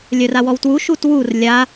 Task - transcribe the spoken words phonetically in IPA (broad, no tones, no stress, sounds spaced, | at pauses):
lʲ œ r a w ɔ w t w u ʃ u t w u r lʲ a